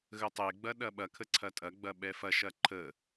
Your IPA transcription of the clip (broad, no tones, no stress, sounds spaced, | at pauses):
ɣ ə tˤ e ɡ͡b ɐ ɗ ɐ ɓ ɐ kʰ ə ǀʰ ɐ tʼ ɐ ɡ͡b ɐ ɓ ɛ f ɐ ʃ ɐ ǃʰ ə